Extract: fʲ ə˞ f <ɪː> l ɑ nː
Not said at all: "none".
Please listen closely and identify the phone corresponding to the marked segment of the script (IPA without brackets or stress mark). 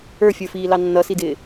iː